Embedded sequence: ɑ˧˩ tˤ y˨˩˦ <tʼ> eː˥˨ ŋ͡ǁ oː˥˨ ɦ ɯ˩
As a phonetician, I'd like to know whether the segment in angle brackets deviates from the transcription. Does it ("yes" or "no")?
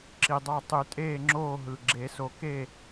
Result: no